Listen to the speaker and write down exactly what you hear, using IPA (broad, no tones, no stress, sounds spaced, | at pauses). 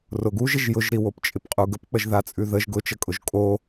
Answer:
r ʊ ɡ u ʒ ɪ ʒ j ʊ ʒ ɾ i w o p t͡ʃʼ ɪ p qʼ u ɡ ə p k͡p ə ʒ ð a t͡sʼ ʉ ð ə ʒ ɡ ʊ t͡ʃ ə kʼ ʊ ʒ kʼ o